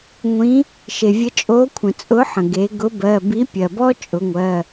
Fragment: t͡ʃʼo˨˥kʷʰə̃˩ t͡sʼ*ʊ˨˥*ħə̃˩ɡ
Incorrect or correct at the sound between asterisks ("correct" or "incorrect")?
correct